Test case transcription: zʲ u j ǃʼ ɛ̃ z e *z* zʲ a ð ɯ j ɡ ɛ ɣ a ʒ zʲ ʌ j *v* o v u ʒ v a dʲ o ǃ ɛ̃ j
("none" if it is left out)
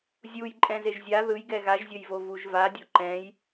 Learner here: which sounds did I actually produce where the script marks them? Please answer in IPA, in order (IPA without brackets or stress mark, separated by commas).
ʒ, v